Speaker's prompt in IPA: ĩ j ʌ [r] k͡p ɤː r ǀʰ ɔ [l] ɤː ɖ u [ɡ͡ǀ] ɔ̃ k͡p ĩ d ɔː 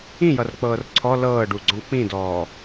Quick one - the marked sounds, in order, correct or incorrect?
correct, correct, correct

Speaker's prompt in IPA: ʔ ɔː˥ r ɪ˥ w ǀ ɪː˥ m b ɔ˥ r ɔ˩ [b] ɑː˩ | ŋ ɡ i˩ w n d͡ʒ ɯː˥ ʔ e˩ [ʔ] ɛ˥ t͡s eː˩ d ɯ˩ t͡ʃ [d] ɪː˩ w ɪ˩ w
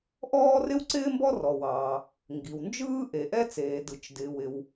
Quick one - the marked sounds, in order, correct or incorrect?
incorrect: w, correct, correct

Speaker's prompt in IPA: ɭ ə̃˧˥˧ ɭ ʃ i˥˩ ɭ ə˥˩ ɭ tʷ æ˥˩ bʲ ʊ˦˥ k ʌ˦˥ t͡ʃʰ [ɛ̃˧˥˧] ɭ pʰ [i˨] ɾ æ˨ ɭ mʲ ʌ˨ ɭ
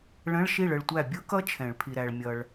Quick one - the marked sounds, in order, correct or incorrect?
incorrect: ɛ̃˨˩˦, correct

